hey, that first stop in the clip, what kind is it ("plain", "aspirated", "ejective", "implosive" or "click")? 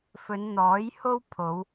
aspirated